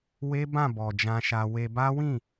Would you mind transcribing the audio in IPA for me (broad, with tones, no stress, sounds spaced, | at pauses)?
w e˦ b ã˦˨ b ɔ˨ d͡ʒ ã˧ ʃ a˧ w e˧ b a˦ w ĩ˦˨